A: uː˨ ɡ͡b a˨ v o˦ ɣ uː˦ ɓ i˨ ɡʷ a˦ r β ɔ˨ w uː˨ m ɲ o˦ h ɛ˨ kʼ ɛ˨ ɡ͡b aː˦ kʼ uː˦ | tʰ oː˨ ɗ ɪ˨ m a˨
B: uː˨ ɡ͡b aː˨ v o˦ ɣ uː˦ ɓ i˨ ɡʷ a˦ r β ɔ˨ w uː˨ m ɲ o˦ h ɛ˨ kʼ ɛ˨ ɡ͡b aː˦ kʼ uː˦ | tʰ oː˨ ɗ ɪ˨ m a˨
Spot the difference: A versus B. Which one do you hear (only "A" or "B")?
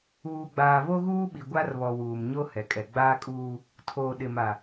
B